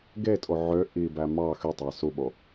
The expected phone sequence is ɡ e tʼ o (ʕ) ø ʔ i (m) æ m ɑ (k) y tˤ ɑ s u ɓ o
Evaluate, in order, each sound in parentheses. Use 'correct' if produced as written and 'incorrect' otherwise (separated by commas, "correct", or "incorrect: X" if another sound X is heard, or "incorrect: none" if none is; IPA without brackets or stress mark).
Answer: correct, incorrect: b, incorrect: x